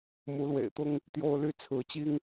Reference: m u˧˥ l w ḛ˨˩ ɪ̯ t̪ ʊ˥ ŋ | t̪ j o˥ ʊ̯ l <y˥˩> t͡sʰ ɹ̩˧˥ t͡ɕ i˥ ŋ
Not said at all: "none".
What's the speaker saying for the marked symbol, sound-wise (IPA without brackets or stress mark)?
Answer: y˥˩